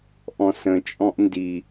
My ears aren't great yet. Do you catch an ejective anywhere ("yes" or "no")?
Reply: yes